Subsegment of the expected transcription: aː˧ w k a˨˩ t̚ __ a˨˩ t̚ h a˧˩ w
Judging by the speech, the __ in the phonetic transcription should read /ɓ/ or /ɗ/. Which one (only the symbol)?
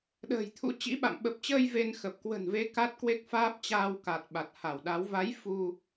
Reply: ɓ